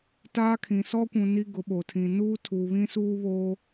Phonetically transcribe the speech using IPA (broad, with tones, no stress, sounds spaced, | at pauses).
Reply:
t aː˦ kʰ ĩ˨ s ɔ˦ kʷ ũ˨ n i˦ ɡ ʊ˨˦ ɓ o˨ tʰ ĩ˨ n uː˦ tʰ u˨ β ĩ˦ s uː˦ β oː˦